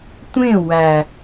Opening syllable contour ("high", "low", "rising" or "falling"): falling